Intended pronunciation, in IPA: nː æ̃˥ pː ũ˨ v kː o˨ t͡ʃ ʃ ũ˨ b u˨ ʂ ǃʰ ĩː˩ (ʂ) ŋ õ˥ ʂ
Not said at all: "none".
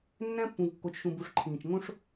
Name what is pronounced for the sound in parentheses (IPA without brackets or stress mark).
t͡ʃ